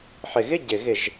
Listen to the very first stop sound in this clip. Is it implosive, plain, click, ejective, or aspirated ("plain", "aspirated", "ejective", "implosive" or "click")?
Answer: plain